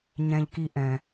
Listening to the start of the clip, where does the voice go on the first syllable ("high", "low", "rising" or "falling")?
high